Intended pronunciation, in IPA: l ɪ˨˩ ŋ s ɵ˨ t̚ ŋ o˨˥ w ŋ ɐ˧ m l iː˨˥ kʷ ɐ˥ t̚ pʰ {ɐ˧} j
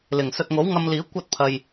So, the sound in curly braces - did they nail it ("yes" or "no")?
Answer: yes